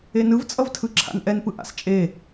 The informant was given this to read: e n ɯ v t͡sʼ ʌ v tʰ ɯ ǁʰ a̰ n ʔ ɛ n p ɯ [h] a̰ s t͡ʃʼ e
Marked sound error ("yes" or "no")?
yes